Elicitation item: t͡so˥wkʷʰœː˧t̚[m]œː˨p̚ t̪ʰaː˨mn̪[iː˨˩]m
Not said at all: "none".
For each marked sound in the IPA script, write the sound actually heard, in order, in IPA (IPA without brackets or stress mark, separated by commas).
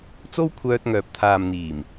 ŋ, iː˨˩